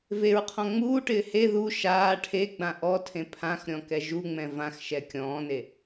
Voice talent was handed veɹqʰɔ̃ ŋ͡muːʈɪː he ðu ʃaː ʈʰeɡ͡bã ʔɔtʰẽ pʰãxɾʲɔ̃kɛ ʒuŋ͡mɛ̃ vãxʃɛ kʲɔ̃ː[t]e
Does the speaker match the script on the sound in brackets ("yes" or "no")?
no